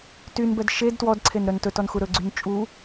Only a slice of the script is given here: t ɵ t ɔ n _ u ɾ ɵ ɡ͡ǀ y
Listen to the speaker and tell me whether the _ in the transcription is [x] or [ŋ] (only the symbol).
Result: x